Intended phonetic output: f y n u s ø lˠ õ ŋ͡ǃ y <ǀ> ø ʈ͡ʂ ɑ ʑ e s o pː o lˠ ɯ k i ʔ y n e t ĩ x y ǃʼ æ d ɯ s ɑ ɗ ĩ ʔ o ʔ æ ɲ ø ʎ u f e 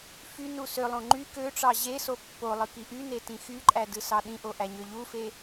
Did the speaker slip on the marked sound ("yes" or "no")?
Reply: yes